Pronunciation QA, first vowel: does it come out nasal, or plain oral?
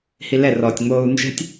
oral